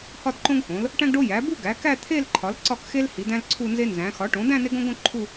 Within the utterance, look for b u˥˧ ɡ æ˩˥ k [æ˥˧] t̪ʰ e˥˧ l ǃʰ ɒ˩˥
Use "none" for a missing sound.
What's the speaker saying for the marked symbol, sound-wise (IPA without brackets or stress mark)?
æ˥˧